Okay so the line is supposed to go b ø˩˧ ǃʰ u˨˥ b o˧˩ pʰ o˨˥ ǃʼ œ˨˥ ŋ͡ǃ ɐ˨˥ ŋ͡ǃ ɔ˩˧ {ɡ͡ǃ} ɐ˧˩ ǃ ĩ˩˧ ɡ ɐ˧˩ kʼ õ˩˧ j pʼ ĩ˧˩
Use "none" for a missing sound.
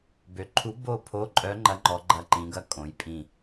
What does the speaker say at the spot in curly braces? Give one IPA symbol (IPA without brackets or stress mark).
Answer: ɡ͡ǃ